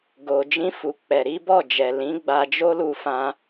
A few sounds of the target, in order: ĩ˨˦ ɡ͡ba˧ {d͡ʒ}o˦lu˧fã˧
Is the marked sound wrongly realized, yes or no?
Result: no